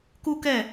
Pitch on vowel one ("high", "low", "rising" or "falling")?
high